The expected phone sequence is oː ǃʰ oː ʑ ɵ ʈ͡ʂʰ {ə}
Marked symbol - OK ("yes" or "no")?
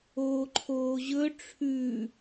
no